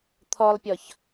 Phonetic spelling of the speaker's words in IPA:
t̪ʰ ɔ lˠ pʲ ɔ ç

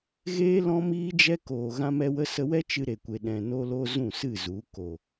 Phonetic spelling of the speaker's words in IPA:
ɣ eː˦ l ɔ̃˦ m iː˦ d͡ʒ ɛ˦ k oː˨ ɣ ã˦ m ɛ˦ w ə˦ s ə˧ w ɛ˦ t͡ʃ ɨ˧ ɾ e˨ kʷ e˨ ɗ ɛ̃˨ n o˧ l o˧ z ũ˦˨ s ɨ˦˨ z u˨˦ k o˨

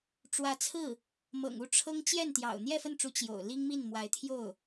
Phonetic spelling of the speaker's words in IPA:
ʈ͡ʂ w ä˧˥ t͡sʰ ɹ̩˥˩ | m ɤ̰˨˩ ŋ u˥˩ ʈ͡ʂʰ ɤ˥ ŋ t͡ɕ j ɛ˥˩ n t̪ j ɑ̰˨˩ ʊ̯ n̪ j ɛ˥˧ f ə˥˩ n ʈ͡ʂ u˧˥ t͡ɕ j o̰˨˩ ʊ̯ l i˥ ŋ m i˥˩ n m w a˧˥ ɪ̯ t̪ʰ j o˥˩ ʊ̯

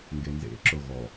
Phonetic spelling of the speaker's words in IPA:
ŋ ɡ e n z ḛ ǁ o ɣ ɔ

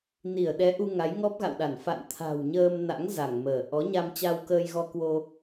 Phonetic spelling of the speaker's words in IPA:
n i˧˩ ə̯ ɗ ɛ˨˦ ʔ u˧ ŋ a˨˦ j ŋ ɔ˦˥ p̚ ɣ a̰˧˨ w ɗ a˧˩ n f a̰˧˨ n t̪ʰ a̤˨˩ w ɲ əː˧ m n a̰˧˥ ŋ z a˧˩ ŋ m əː˧˩ ʔ ɔ˨˦ ɲ a˧ m t͡ɕ a˧ w k əː˧ j ɣ ɔ˧ k w o˧

